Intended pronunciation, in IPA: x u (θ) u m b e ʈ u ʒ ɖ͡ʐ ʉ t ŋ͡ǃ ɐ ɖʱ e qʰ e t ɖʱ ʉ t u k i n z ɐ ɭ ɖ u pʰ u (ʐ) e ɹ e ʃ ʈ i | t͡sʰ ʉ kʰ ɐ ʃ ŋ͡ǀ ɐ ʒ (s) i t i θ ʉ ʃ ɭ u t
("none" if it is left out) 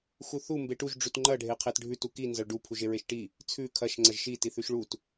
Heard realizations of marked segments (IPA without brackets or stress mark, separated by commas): θ, ʒ, ʃ